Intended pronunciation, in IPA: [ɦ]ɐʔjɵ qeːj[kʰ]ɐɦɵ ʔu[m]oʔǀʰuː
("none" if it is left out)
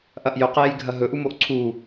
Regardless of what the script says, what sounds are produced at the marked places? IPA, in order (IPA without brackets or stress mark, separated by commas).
ʔ, ɡʱ, m